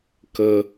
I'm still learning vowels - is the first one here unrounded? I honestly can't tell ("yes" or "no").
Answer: yes